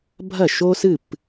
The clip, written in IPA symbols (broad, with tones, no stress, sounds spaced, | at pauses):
bʱ ɐ˥˩ ʃ o˥ s ɨ˥˩ p